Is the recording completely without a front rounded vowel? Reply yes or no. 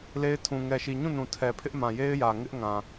yes